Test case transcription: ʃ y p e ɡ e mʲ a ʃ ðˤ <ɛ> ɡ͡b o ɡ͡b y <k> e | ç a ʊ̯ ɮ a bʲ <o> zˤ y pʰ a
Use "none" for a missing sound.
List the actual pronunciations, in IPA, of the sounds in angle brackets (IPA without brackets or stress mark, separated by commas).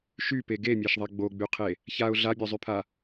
ɛ, qʰ, o